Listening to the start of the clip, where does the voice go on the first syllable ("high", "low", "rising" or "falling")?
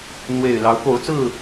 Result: low